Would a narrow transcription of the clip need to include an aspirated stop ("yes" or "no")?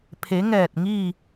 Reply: yes